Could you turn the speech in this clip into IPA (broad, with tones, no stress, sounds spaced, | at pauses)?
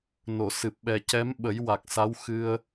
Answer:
n o˨˩˨ s ɨ˨˩ p̚ ɓ ɛ˨˩ c ɛ˧˥ m ɓ ə˨˩˦ j w a˨˩ k̚ s a˧˥ w x ɨ˧ ə̯